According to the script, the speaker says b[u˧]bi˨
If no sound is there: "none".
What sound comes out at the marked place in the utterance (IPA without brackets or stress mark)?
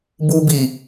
u˧